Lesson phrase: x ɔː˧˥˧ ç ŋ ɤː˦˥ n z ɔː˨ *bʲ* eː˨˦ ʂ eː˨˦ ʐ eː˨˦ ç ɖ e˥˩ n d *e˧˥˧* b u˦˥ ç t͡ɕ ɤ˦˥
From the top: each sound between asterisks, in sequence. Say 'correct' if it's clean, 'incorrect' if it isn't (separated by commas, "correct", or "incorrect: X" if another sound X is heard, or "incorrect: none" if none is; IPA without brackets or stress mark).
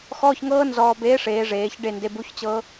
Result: incorrect: b, correct